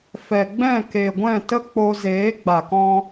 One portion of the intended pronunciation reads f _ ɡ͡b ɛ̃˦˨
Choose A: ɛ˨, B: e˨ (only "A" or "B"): A